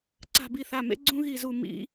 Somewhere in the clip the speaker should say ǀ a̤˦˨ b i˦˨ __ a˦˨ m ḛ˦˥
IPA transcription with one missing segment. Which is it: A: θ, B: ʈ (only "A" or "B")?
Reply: A